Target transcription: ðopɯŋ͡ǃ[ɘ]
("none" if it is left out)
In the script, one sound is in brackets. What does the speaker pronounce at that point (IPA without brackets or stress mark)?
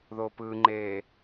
e